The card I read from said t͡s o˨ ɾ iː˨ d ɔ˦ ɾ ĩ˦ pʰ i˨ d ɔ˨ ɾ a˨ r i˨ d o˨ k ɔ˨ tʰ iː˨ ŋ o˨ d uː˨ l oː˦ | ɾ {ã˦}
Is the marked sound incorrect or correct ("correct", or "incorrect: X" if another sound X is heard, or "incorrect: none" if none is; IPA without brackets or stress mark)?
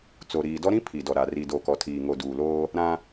correct